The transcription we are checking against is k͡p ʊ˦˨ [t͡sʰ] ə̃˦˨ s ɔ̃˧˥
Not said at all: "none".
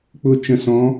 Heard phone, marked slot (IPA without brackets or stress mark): t͡ʃ